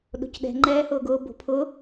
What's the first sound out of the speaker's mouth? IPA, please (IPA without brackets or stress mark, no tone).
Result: ɗ